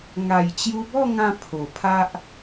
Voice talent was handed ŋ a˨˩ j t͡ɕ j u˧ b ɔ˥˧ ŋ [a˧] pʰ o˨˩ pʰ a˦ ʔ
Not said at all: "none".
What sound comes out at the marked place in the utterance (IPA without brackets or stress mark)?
ã˧